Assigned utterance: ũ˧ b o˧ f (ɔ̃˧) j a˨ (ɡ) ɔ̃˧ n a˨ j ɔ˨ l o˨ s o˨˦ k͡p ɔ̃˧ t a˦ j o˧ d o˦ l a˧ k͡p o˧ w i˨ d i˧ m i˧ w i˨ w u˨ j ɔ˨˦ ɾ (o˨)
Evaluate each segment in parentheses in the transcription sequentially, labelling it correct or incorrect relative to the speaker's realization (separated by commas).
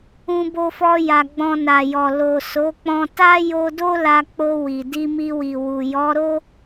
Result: incorrect, incorrect, incorrect